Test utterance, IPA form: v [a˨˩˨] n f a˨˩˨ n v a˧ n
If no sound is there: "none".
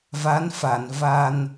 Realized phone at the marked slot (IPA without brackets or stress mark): a˧˥